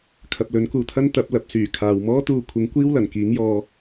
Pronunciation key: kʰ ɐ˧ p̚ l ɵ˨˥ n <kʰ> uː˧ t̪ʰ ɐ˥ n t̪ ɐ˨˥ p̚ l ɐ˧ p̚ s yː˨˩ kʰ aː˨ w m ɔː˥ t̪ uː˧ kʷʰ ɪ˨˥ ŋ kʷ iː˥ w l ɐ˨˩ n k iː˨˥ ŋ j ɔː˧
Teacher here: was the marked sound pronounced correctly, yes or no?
no